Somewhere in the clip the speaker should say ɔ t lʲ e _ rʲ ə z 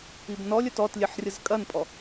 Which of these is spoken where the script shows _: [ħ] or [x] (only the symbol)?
ħ